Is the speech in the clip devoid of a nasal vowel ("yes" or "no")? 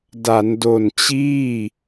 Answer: yes